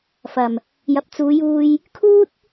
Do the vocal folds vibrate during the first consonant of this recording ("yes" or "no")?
no